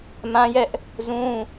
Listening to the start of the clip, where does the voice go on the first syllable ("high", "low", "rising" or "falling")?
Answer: high